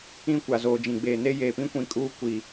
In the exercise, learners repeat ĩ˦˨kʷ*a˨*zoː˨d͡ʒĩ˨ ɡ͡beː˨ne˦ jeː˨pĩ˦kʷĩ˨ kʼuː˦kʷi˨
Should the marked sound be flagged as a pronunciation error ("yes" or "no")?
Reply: no